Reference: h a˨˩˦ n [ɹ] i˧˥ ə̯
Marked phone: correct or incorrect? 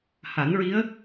correct